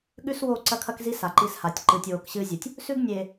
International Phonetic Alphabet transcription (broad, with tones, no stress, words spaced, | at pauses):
ɠʉ˦swo˦˨ǀɐ˦kʰɐ˦k zi˦ sa˨ǃi˦sha˨tʲ ǃɨː˨tʲwoː˨kɕɨː˦ zʲu˨tʲ | sʉ˦ɡ nʲeː˨